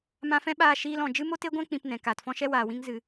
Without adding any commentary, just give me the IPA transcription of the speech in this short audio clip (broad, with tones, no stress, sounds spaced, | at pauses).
m ã˧ f ɛ̃˦ ɓ aː˧ ʃ iː˧ l ɔ̃˨ d͡ʒ ɨ˦ m o˦ t e˦ ɡʷ ɛ̃˦ k͡p ĩ˧ p n ɛ̃˨ k aː˨ t f ɔ̃˦ ʃ ɛ˦ w aː˨ w ĩ˦ ŋ z ɨ˧